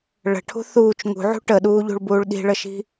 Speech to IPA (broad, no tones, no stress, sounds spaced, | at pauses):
ɭ ə̤ ʈʰ ṳ θ uː t͡ʃ ŋ ṳ ʕ ṳ ʈ ə ɗ uː ʎ ṳ ɭ b uː ɭ ɗ i̤ ɭ ə ʃ i̤